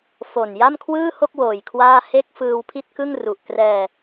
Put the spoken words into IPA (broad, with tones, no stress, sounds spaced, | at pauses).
f o˨˩ n j a˥˩ m kʰ w ɯː˥˩ h o˥˩ k̚ w oː˨˩ j kʰ w aː˥˩ h e˥˩ k̚ f ɯː˧ w pʰ i˥˩ t̚ k ɯ˥˩ ŋ r u˨˩ ʔ k r ɛː˧